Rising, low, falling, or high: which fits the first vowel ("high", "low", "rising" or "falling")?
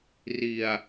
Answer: low